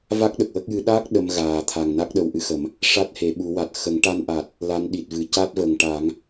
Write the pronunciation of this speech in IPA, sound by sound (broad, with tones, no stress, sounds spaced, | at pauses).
v a˦˥ k̚ ɗ ə˨˩ k̚ w ə˦˥ k̚ j ɨ˧˥ ɗ a˦˥ k̚ ɗ ə˧ m ɣ aː˨˩ t̪ʰ a˨˩ ŋ n a˦˥ k̚ ɗ ə˧ w ʔ ɨ˧ x ə˨˩˦ m | ʂ a˦˥ t̚ h e˨˩˦ ɓ u˨˩˦ w a˨˩ t̚ x ə˨˩˦ ŋ ʈ a˧ n ʔ a˨˩ t̚ | l a˧˥ n ɗ i˨˩ t̚ v ɨ˨˩˦ c a˦˥ t̚ v ə˨˩ ŋ ʈ a˨˩˦ ŋ